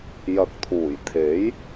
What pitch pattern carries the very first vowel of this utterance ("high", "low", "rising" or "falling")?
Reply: rising